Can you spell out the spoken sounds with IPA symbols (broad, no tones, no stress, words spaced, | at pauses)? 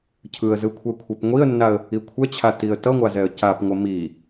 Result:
cʰɯə̯zɯkʷʰɛkʷʰɛp ŋʷiə̯nːaə̯ | ikʷʰɛt͡ɕʰa tiə̯tʌŋʷazɛə̯ capŋʷʌ mi